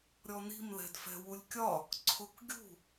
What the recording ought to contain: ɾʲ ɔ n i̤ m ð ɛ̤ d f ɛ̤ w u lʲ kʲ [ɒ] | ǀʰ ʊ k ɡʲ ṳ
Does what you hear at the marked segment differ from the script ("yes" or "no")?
no